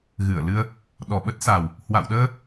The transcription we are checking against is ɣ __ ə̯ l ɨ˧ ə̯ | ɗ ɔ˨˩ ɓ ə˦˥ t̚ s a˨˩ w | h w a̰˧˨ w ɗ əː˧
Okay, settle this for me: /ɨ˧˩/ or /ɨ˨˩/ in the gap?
ɨ˧˩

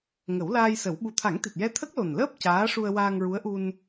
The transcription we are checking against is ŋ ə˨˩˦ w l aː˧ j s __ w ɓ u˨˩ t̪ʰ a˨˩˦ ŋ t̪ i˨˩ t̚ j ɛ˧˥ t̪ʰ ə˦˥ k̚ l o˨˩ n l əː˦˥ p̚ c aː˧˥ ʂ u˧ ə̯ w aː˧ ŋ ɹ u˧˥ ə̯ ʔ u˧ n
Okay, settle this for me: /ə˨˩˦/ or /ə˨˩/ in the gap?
ə˨˩˦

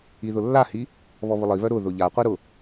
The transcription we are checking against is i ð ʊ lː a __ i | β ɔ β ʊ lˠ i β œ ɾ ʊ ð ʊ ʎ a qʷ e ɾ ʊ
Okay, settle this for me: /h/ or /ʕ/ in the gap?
h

